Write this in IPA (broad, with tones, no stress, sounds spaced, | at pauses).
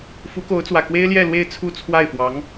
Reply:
f u˧˥ k o˧˥ ʊ̯ t͡s w ä˨˩ k w e˥ ɪ̯ l j ɛ˥˧ l w e˥˧ ɪ̯ t͡sʰ u˥˧ t͡sʰ w a˥˩ ɪ̯ f w ɑ˧˥ ŋ